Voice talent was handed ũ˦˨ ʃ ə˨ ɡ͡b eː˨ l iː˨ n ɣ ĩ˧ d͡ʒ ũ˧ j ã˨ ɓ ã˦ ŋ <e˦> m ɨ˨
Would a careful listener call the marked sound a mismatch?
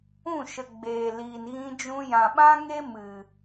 no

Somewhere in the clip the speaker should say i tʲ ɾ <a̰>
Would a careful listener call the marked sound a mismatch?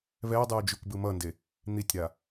yes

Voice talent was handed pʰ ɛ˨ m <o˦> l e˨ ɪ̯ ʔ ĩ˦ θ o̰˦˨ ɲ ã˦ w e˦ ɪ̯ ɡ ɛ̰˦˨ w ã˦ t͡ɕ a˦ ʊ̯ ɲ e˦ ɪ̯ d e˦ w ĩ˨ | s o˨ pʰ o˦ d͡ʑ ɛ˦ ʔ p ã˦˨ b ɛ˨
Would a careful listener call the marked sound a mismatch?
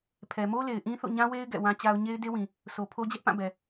no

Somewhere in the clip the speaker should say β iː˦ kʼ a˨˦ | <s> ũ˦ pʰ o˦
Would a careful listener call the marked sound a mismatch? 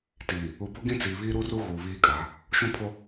yes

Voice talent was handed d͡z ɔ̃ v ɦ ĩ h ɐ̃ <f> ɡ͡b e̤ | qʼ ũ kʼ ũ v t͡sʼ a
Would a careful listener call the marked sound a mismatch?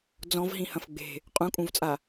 no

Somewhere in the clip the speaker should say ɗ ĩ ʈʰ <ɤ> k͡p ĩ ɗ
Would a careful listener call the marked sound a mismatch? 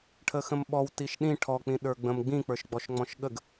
yes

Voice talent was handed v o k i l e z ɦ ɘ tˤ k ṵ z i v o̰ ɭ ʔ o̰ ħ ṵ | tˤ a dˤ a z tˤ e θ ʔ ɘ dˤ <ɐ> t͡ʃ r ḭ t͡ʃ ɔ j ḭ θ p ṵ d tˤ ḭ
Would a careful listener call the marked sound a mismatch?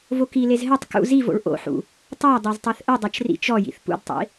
no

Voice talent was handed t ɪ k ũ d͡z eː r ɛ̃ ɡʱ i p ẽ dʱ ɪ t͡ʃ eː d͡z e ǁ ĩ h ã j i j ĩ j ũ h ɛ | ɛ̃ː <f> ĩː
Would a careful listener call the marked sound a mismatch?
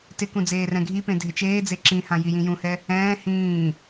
yes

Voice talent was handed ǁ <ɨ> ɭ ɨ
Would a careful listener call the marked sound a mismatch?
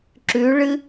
yes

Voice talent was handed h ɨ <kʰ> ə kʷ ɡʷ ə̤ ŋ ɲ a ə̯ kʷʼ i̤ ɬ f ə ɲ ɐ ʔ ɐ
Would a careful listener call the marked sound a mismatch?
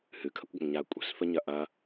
no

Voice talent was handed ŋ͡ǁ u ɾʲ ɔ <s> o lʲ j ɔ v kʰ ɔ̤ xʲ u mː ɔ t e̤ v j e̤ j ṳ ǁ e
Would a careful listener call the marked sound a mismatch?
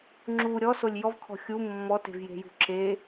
no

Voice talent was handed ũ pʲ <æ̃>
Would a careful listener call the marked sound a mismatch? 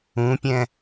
yes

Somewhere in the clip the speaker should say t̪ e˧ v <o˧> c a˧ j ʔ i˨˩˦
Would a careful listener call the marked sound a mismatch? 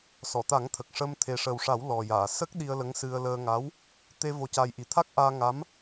no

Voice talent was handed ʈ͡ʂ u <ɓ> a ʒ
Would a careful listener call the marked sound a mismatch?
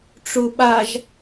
no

